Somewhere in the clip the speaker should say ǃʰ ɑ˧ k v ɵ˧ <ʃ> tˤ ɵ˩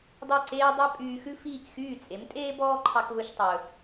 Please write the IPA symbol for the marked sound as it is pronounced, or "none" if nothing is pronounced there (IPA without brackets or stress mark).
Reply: ʃ